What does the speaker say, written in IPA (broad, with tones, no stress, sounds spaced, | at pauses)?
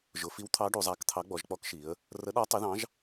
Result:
ʒ ʊ˩˧ f i˨˥ w t̪ʰ ɑ˨˥ ɖ u˩˧ zˤ æ˨˥ k t̪ʰ ɑ˨˥ ɡ͡b ɔ˩˧ ʒ k͡p ɔ˨˥ k ʃ i˩˧ ə̯ | r ə˨˥ ɗ ɒ˨˥ tˤ ɪ˨˥ ð ɑ̃˨˥ ʒ